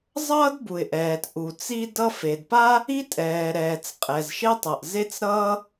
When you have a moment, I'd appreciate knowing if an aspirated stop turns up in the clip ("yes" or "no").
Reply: no